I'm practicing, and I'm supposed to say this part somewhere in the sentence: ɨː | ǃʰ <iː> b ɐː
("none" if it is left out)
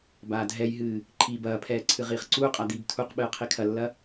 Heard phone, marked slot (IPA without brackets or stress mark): iː